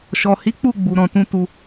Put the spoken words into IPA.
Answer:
ʃ ɔ˨ h i˨˦ k͡p u˦˨ ɡ͡b u˨ ɾ ɔ̃˨ t ũ˧ t u˧

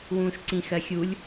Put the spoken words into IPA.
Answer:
w ũː ʃ ǀ ĩ x ɜ xʲ u lʲ

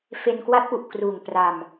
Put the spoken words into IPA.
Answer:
f e˧ n k w a˦˥ t̚ p u˨˩ ʔ k r uː˨˩ ŋ p r a˧ m

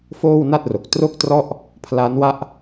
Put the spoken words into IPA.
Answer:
f oː˥˩ w n a˥˩ t̚ r o˨˩ k̚ t r o˥˩ k̚ t r ɔ˥˩ ʔ | pʰ l a˦˥ n w a˥˩ ʔ

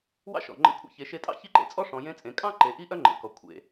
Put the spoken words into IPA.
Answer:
w ɑ̰˥ ʃ ɔ̰˩ ŋ͡ǃ ḛ˧˥ kʷʰ ḛ˧ ç e˩˧ ʃ e˧ tʼ ɑ̰˥ ç i˥ ǃ ḛ˧ t͡sʼ ɔ˥ ʂ ɔ̃˩˧ j ẽ˧˥ t͡sʼ ẽ˩˧ kʼ ɑ̃˥ ǃ e˩˧ ʔ i˥ ʔ œ˥ ŋ͡ǃ ḛ˩ k ɔ˩ kʷʰ ḛ˩

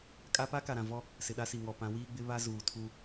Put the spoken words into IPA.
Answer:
kʼ a˦ p a˦ k a˨ ɾ ã˨ v ɔ˦ | s ɪ˨ ɗ a˦ s i˨ ŋ ɔ˨ p ã˨˦ w iː˦ ɡ͡b ɪ˦ β a˦ z uː˨ tʰ u˦

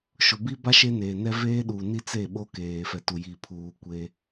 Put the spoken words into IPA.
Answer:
ʃ ʊ˨ b i˦ b a˦ ʃ e˦ n eː˨ n ɛ˦ v eː˦ ɗ uː˨ n i˦ t͡s e˦˨ ɓ o˦ k eː˨ f ɛ˨ t u˨ j i˨ pʰ uː˨ kʷ e˦

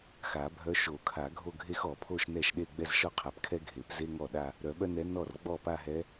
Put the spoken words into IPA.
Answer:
x a˨˩˦ bʱ œ˧˥ ʃ o˨˩˦ kʰ a˨˩˦ ɡʱ o˥˧ ɡʱ e˥ x ɔ˨˩˦ pʰ o˥˧ ʃ n ɛ˥˩ ʃ ɗ e˥˧ ɡ͡b ɛ˥˧ z ʃ ɔ˥ qʰ a˨˩˦ p kʰ ɛ˥ ɡʱ e˨˩˦ p z e˥ ŋ ɔ˥˩ ɗ a˥˧ | ɾ œ˨˩˦ ɓ œ˥ n ɛ˧˥ n ɔ˥˩ r ɡ͡b ɔ˥˩ p a˥˧ ɦ ɛ˧˥

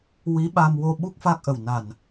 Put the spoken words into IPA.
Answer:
w i˧˥ ɓ a˧ m w o˧ ɓ u˦˥ k̚ f a˦˥ k̚ ʔ ə˨˩ w n a˨˩ n

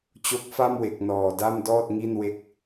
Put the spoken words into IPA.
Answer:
t͡ɕ o˦˥ k̚ f a˥˩ m w e˨˩ k̚ n ɔː˨˩ d a˥˩ m d ɔː˥˩ t̚ ŋ i˥˩ n w e˥˩ k̚

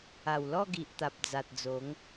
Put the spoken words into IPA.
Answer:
a˨˩ w l ɔ˥˧ ɡ i˨ ʔ t̪ a˨ p̚ d͡z a˨ t̚ d͡z o˨˦ ŋ

